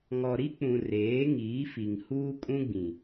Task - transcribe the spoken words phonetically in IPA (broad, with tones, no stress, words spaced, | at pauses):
ŋɔ˨ɾi˦k͡pũ˨ reː˨˦ŋiː˨˦fi˨ŋ huː˦kʼũ˦ɡ͡bĩ˨